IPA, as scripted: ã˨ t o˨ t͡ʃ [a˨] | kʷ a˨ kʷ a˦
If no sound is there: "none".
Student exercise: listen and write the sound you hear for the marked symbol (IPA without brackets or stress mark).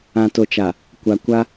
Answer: a˨